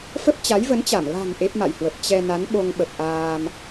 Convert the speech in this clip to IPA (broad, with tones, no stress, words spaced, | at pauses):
fə˦˥p̚t͡ɕa˨˦jvə˨˦nt͡ɕa˧˩m la̤˨˩ŋ ʔe˦˥p̚ma̰˧˨jhwə˨˩p̚ t͡ɕɛ˧na˨˦n ɓo˧ŋɓə˨˩p̚ ʔaː˧m